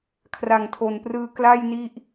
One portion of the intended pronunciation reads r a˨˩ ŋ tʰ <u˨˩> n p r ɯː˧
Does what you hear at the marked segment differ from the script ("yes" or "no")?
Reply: yes